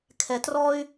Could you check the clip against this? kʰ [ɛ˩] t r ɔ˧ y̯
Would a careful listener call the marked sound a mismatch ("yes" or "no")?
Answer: no